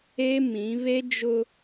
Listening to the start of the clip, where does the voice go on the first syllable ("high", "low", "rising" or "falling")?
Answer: high